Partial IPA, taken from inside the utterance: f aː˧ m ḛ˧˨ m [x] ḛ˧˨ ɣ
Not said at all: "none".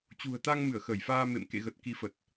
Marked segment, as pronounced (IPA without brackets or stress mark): k